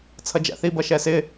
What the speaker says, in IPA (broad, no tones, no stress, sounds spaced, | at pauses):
t͡sʰ ʌ d͡ʒ æ̰ θ i b ʌ ʃ ɛ s ɪ